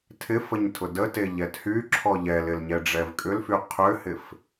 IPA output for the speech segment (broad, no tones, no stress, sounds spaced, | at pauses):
tʰ ɪ f ə ɲ tʰ ʊ d ə t e ʎ ɛ t h y ǁʰ ɔ ʎ ɛ l ɪ l ɲ ɛ ɖ͡ʐ ɛ v kʼ ʏ l f y qʰ ʏ h ɪ f